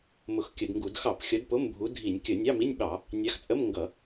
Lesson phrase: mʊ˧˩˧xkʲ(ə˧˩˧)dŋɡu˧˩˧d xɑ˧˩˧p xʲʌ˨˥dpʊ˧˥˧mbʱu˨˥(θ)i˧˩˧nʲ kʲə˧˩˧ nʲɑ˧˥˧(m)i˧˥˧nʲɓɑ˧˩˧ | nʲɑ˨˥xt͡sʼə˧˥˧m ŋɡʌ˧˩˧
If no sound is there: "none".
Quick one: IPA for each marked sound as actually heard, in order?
ə˧˩˧, dʱ, m

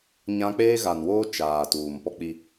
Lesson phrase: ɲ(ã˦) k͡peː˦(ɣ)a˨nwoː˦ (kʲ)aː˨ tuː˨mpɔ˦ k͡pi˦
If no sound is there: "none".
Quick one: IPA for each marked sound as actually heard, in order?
ã˦, ɣ, t͡ʃ

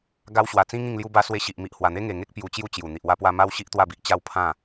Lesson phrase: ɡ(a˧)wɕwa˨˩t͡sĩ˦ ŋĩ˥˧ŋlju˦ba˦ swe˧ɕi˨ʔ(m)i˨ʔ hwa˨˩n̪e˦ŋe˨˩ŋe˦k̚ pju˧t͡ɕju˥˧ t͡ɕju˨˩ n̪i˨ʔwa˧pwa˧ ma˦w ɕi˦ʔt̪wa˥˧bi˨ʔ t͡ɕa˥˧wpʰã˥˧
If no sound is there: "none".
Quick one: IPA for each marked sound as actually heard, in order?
a˧, m

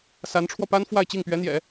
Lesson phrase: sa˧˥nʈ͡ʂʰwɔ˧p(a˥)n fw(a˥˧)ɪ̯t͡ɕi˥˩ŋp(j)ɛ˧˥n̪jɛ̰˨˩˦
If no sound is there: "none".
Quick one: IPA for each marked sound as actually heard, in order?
a˥, a˥˧, ɥ

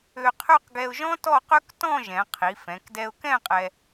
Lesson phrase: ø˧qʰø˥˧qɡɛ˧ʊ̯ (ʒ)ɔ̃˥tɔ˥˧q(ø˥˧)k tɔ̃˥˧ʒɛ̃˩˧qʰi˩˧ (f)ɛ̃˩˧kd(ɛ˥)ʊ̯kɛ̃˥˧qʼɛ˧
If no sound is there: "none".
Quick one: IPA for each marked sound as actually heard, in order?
ʒ, ø˥, f, ɛ˧

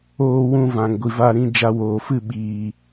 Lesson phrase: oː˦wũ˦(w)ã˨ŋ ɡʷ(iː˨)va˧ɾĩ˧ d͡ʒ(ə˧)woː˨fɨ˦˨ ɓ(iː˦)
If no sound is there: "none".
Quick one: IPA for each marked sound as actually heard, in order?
v, i˨, a˧, iː˨

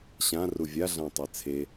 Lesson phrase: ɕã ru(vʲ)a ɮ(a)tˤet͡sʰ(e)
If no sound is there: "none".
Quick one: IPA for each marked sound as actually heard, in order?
vʲ, ã, e

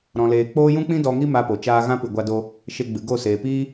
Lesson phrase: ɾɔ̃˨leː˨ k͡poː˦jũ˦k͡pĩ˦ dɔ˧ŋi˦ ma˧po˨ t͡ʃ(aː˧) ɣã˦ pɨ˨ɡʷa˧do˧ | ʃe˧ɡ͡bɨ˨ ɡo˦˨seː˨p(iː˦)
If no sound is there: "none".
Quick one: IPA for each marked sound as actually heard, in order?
aː˧, iː˦

